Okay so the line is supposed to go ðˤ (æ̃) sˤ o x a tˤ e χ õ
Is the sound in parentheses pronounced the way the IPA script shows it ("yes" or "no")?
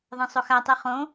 no